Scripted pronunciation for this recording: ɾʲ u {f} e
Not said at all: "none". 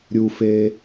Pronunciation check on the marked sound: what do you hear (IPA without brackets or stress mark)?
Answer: f